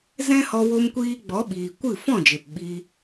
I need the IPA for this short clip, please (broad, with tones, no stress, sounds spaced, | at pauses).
z ɛ̃˦ h ɔ˧ w o˧ m kʷ iː˧ ɡ͡b ɔ˨˦ ɓ iː˨ kʷ ɨ˦˨ f ɔ̃˦˨ d͡ʒ e˨ p ɓ i˧